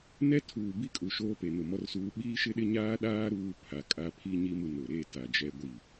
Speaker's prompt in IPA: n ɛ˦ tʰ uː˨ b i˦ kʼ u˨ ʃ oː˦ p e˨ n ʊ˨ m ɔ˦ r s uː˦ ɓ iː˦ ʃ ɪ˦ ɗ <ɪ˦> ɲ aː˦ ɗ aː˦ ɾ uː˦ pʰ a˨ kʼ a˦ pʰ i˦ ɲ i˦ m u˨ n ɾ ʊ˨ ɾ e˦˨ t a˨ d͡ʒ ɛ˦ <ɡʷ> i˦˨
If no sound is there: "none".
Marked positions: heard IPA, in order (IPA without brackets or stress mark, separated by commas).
ɪ˦, ɡʷ